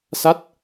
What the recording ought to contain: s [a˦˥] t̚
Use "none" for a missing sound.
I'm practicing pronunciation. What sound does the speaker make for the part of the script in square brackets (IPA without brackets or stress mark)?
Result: a˦˥